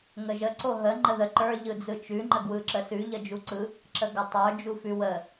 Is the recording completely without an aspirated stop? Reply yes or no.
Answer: yes